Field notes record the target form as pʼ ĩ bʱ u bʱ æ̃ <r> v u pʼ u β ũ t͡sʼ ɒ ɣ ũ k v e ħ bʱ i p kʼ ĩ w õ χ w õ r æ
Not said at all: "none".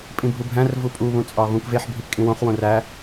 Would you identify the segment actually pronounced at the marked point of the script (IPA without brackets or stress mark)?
r